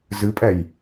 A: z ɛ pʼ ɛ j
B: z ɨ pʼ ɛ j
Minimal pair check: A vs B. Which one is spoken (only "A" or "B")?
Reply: B